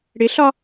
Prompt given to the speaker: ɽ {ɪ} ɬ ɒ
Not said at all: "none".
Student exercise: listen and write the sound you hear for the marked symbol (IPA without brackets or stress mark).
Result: ɪ